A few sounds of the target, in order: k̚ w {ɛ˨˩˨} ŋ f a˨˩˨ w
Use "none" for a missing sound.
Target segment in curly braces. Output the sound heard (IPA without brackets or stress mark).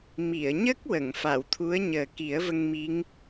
ə˨˩˨